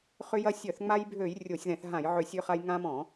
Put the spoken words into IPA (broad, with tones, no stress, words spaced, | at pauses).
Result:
χʏ˧jɐ˧ sʲœ˧˩˧θ ŋ͡ma˧jbʱø˧˩˧j rʲo˧˩˧sʲðɛ̃˧˩˧θɦã˧˩˧jʕʏ˧˩˧ sʲø˧χa˧j ŋã˧mɔ̃˧˩˧